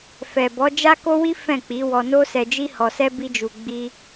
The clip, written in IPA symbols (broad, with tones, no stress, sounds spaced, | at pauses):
f ɛ˨ b ɔ˨˦ d͡ʒ a˦ k o˦ w i˦ f ɛ̃˦˨ k͡p i˨˦ w ɔ˧ n o˦ s ɛ˧ d͡ʒ i˦ h ɔ˧ s ɛ˦ b i˦ d͡ʒ u˧ ɡ͡b i˦